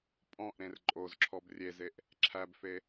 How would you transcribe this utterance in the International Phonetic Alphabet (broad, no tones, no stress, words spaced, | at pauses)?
pʼɔ̃ʔɾẽr ǃʼozǁʰɔb rʲezeʔ | ǁʰæbfe